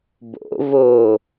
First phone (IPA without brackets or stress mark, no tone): b